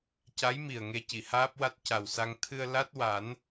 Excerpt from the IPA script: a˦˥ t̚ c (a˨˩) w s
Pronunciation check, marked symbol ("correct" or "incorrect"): correct